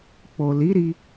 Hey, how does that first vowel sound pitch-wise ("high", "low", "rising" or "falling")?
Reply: low